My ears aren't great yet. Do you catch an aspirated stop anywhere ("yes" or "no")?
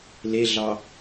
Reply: no